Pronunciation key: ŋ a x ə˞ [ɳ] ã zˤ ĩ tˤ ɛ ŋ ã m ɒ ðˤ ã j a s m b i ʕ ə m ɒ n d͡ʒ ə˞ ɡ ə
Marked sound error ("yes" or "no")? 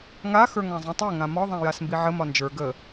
yes